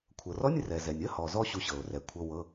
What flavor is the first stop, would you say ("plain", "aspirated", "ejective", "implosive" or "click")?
aspirated